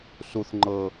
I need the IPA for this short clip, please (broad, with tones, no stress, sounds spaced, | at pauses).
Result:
s u˦ θ ŋ͡ǃ ɤ˦